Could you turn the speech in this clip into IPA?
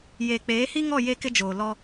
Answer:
j eː˨ k͡p eː˨˦ h i˦ ŋ ɔ˦˨ j e˦ k ɪ˦ d͡ʒ oː˨ l ɔ˦

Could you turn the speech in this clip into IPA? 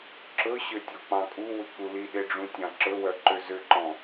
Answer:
ǁ ɵ ɕ ø tʲ ɔ k͡p ɑ̃ kʼ u w ʉ k͡p u l i ɗ e ɖ͡ʐ ũ tʲ ɑ̃ ǁ ɵ w œ ǃ ø z ø ǃ ɔ̃

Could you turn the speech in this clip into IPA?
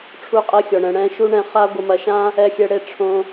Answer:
ʈ͡ʂʰ u˦ qʼ ɛ˦ xʲ ɔ˨ ɳ ɛ̃˧ ɽ ɛ̃˧ ʃ u˦ ɳ ɛ̃˧ χ a˦ ɡʷ ɐ˧ m ɐ˧ ʃ ã˦ | ɛ˧ xʲ ɛ˧ ɽ e˧ ʈ͡ʂʰ õ˧

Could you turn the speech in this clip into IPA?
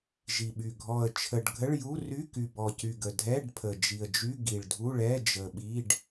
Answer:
ʒ i˨˩ ɓ y˨˩ ɡʱ ɔ˨˩ ə̯ t͡ʃʰ ə˨˩ ɖ ɡʱ ə˧˥˧ ɭ j u˧˥˧ r y˧˥˧ k y˨˩ b ɔ˨˩ c y˨˩ ɡ ə˨˩ dʱ ɛ˧˥˧ ɖ pʰ ə˨˩ d͡ʒ i˨˩ ə̯ d͡ʒ y˧˥˧ ɡ i˨˩ ɭ dʱ u˧˥˧ ɭ ɛ˧˥˧ d͡ʒ ə˨˩ ɓ i˧˥˧ ɖ

